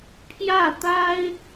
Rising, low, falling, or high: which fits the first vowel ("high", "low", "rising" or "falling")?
falling